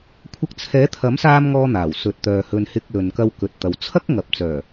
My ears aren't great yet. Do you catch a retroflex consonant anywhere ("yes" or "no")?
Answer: no